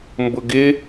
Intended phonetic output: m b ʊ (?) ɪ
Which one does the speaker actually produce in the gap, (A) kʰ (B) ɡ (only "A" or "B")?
B